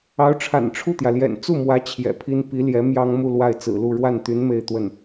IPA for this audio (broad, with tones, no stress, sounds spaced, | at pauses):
ɑ˧˥ ʊ̯ ʈ͡ʂʰ a̰˨˩ n ʈ͡ʂʰ u˥˩ t̪ j ä˩ l j ɛ̰˨˩ n t͡s u˥˩ m w ä˧˥ t͡ɕʰ j ɛ̰˨˩ pʰ i˥ n p i˧˥ l j ɛ˧˥ m j ɑ˥ ŋ m u˥˧ l w a˥˩ ɪ̯ t͡s ɹ̩˨˩ l u˥˧ ɻ w a˥˩ n t̪ y˧˥ n m e˥˧ ɪ̯ t̪ w ə˥˩ n